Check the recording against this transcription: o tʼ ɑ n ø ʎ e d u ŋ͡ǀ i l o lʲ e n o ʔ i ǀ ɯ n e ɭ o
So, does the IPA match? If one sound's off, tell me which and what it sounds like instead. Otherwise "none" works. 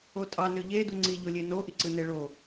l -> ʎ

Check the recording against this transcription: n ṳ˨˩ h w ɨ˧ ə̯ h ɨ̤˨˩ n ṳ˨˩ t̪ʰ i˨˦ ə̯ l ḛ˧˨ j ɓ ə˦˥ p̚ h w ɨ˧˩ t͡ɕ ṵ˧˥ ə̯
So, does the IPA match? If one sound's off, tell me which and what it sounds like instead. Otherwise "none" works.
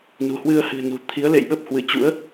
none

